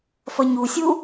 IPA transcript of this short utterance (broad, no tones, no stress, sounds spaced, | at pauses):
f ʌ ɲ u sʲ u